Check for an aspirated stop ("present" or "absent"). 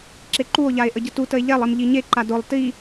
absent